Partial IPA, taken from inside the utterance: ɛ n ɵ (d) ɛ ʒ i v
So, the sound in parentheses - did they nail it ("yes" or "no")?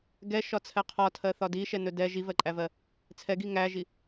yes